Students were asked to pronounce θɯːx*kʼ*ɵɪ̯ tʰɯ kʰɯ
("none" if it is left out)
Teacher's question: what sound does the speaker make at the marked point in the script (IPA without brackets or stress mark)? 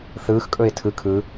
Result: kʼ